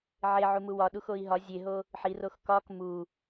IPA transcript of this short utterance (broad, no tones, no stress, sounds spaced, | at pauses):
ʕ e ʕ u m u w ɒ ɗ u x o i̯ ɦ ɒ zʲ e ɦ o | ħ i r o x k ɒ k m u